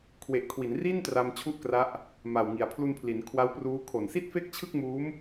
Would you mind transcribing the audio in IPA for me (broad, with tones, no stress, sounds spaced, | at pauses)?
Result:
kʰ w e˨˩ ʔ kʰ w i˩˦ n r i˥˩ n t r a˧ m t͡ɕʰ u˥˩ ʔ k r a˦˥ ʔ | m a˨˩ w ŋ i˨˩ a̯ pʰ l u˧ n pʰ l i˩˦ n kʰ w a˦˥ w p r uː˦˥ kʰ o˨˩ n s i˥˩ t̚ f e˥˩ k̚ t͡ɕʰ ɯ˥˩ k̚ m uː˦˥ m